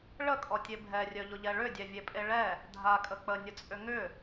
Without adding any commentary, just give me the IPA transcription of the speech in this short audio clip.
ɭəkʼɔtʲe bʱɛrʲœʎʊʎɛ ɭʏdʲɛvʲepʼe ɭɛ | dʱakʼə k͡pənʲʊt͡sʼʏ ŋʏ

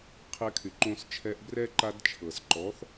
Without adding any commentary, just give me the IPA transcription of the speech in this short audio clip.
qʰɛ˧kʰy˨ǃõ˧s t͡ʃʰɛ˧ʔbrɛ˦ ǃa˧dt͡ʃʰɤ˨sǃɔ˨˦θ

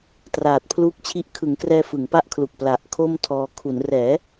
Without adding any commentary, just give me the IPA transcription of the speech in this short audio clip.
traː˨˩t̚pʰluː˥˩k̚t͡ɕʰi˥˩ʔ kʰɯ˩˦ŋkrɛː˧ fɯ˩˦ŋpa˥˩ʔkʰlu˨˩k̚ pla˨˩ʔ kʰo˥˩mtʰɔː˧ kʰu˩˦n rɛː˩˦

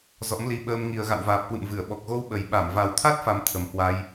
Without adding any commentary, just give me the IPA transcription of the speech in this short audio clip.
zɔ̰˧˥mli˧ɓəː˧m ŋi˨˩ə̯ɣa̰˧˨wvaː˨˩p̚kwɨ̰˧˨m vɨ˧˩ə̯ɓɔ˨˩k̚ ɣo˧wɓə˨˩j ɓa˧˩mva˨˩wt̪ʰa˦˥t̚ fa˨˦mt̪ʰə˨˩mhwa˧j

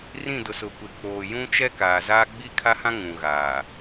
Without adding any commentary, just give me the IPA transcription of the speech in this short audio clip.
rĩ˦˨dʊ˨sʊ˨kʷe˨ k͡poː˨ jũ˦t͡ʃɛ˦kaː˨zaː˦ ɡ͡bi˦kʰa˦hã˦ ŋũ˨ɣaː˨

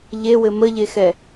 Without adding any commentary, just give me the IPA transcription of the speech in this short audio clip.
ʎewɘ məʎexɛ

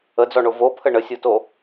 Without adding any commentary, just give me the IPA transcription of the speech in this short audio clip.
əd͡zɔɳo vopʰə ɳəsʲoto

